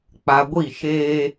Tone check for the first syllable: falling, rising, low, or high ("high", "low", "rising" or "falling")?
low